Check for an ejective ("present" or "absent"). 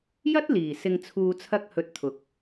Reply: absent